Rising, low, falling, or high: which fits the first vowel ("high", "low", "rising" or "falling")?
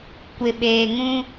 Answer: low